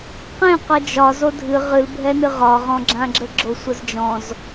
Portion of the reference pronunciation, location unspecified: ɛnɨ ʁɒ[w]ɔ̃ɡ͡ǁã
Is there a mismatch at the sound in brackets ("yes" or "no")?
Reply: yes